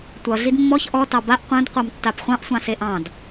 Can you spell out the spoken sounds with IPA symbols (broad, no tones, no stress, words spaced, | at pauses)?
tʷʌ ɮidmːɔç ʔɔ tɑbaʔ qʷœ̃d qʷɑmtːapχʷɑ̃ʔ sʷɑ̃seʔɑ̃d